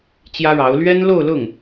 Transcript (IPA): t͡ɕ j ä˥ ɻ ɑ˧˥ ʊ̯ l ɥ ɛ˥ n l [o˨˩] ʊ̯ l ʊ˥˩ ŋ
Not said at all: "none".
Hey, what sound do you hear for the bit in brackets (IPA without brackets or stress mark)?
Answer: o˥˧